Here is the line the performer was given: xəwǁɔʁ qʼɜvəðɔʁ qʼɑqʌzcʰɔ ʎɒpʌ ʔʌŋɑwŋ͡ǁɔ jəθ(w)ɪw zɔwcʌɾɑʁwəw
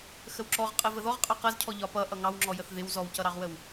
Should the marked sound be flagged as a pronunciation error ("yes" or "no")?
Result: yes